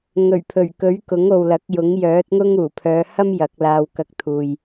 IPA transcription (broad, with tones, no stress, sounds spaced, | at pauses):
ŋ ɵ˨˩ ɥ pʰ ɵ˨˩ ɥ k ɵ˨˥ ɥ k ʊ˨˥ ŋ o˨ w l ɐ˨˥ k̚ j ʊ˨˥ ŋ j œː˨˥ t̚ ŋ ʊ˥ ŋ uː˨˩ pʰ œː˨˧ h ɐ˥ m j ɐ˨˥ k̚ l aː˧ w k ɐ˧ k̚ t̪ʰ uː˨ j